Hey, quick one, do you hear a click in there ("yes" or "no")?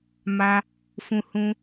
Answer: no